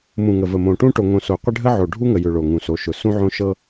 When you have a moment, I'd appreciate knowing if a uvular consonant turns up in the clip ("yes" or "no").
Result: yes